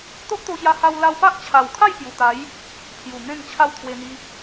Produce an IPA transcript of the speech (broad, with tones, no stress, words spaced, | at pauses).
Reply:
t̪o˦ʔt̪o˧ɕja˧ha˧w la˧wpa˦ʔt͡ɕʰa˨˩wkʰa˥˧j pju˨˩t̪a˨˦j | pʰju˨˩n̪ẽ˥˧ŋ t͡ɕʰa˥˧wt̪ʰwe˧n̪i˧